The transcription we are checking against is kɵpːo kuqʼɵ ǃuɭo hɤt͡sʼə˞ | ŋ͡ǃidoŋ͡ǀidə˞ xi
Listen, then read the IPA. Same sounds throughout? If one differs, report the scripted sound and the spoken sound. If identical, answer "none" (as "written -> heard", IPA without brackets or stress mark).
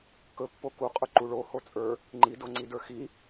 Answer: ɤ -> o